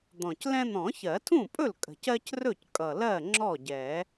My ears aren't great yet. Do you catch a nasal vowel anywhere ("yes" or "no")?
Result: yes